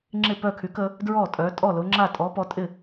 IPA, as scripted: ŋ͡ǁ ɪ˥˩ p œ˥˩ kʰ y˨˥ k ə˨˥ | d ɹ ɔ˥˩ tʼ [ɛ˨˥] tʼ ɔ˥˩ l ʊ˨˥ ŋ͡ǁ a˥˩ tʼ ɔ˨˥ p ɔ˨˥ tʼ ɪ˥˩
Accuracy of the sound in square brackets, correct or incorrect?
incorrect